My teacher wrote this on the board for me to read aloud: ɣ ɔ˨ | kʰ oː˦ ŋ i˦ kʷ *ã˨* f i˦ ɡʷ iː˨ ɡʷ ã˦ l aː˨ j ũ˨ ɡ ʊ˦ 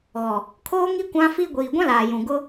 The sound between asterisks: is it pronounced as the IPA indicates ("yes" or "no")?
no